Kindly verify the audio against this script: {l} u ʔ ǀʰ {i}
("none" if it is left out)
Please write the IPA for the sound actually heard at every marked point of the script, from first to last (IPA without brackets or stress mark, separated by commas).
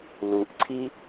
l, i